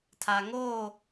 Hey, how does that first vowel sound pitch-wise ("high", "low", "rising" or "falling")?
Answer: low